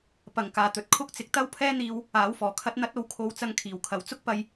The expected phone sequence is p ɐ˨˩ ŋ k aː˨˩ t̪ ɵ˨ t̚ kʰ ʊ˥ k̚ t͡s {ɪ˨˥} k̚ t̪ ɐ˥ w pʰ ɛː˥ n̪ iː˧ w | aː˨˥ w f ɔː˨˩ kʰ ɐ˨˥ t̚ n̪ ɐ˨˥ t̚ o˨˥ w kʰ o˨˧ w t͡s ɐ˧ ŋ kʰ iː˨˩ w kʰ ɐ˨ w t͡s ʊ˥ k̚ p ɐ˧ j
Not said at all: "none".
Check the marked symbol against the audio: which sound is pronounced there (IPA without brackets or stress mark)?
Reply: ɪ˨